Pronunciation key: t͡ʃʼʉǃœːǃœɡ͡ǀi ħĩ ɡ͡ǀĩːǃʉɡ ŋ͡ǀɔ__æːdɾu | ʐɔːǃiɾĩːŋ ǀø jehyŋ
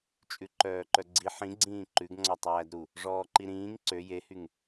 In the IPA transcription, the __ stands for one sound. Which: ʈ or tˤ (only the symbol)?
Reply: tˤ